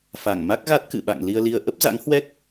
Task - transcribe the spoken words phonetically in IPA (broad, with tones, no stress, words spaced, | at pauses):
fa˧˩ŋ ma˦˥k̚ɣa˦˥t̚kɨ̰˧˨ɓa̰˧˨ŋ li˧ə̯li˧ə̯ ʔə˦˥p̚za̰˧˥ŋhwɛ˦˥k̚